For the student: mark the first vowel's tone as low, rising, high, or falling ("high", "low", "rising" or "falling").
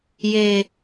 low